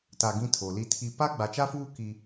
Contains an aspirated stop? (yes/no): yes